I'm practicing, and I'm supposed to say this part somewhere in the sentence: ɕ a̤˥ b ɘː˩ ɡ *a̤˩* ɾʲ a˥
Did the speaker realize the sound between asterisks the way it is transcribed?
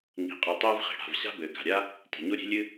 yes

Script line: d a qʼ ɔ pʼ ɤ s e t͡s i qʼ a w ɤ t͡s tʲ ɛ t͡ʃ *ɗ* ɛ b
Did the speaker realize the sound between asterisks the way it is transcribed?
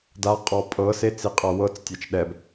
yes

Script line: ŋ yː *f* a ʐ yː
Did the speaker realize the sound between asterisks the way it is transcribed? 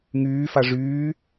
yes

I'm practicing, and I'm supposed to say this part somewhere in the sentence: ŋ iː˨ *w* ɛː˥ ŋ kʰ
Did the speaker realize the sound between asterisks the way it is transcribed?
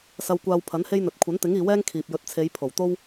yes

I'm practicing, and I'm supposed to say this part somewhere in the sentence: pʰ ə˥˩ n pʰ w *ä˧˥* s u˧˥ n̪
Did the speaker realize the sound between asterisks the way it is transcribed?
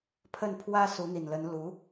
no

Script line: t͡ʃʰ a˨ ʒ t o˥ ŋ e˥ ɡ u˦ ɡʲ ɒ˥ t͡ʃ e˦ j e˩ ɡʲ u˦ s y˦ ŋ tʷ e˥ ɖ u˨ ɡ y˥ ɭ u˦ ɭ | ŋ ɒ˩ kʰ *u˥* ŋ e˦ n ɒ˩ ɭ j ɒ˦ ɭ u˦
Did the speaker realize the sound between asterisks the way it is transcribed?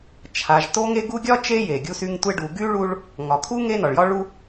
yes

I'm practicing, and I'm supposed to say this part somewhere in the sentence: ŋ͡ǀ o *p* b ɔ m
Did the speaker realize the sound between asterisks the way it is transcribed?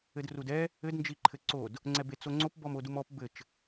yes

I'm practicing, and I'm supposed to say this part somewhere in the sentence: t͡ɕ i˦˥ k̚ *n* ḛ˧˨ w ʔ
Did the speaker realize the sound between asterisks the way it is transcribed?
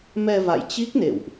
yes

